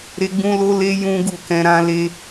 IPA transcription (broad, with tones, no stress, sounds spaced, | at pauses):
ɾ e˦ ɡ͡b ũ˦ l o˦ l e˦ j ũ˦ ɡ u˦˨ k ɛ̃˧ ɾ ã˧ l e˧